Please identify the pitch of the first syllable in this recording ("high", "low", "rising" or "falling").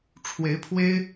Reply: rising